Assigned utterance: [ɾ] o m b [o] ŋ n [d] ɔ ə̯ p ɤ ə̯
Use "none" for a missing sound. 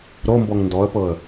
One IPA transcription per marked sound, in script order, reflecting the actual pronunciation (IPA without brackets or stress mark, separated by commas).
ɾ, ɔ, d